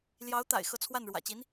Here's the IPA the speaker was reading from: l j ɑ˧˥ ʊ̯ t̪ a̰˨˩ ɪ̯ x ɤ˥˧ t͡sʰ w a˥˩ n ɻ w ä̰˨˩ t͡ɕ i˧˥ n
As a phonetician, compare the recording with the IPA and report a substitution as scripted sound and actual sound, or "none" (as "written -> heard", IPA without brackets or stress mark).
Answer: none